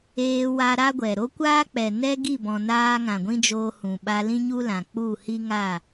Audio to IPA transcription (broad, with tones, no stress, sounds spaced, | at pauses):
eː˧ w a˧ ɾ a˦ ɡʷ ɛ˨ ɾ o˦ kʷ aː˦ k͡p ɛ˨ n ɛ˦ ɡ i˦˨ b ɔ̃˨ n aː˧ ŋ ã˨ ɡʷ ĩ˦ d͡ʒ oː˧ h ũ˨ ɓ a˧ l ĩ˦ ɲ u˦ l ã˨ k͡p u˦˨ h i˦ ŋ a˦˨